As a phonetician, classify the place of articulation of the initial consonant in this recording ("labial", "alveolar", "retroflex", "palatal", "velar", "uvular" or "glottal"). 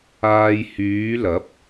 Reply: palatal